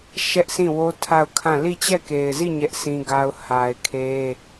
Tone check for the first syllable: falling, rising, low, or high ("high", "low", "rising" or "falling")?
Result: high